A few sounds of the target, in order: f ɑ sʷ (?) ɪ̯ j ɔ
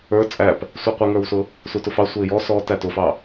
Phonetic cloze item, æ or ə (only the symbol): ə